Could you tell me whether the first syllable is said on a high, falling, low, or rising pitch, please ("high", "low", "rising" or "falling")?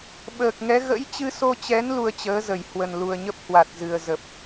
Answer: low